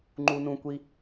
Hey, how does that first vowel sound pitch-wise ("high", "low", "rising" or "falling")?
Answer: high